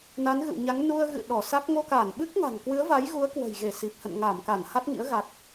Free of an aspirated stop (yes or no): yes